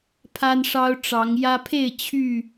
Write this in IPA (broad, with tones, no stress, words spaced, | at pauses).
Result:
pʰa˦nʂɑ˦ʊ̯ ʈ͡ʂɑ˨˦ŋjä˦ pʰe˥˨ɪ̯ t͡ɕʰy˥˨